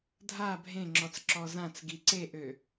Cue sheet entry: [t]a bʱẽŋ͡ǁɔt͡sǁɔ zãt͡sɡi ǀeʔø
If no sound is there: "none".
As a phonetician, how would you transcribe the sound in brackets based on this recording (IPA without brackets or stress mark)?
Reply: dʱ